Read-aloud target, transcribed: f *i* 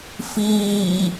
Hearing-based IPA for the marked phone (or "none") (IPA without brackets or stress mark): iː